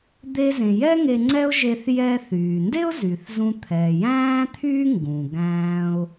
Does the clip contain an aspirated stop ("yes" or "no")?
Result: yes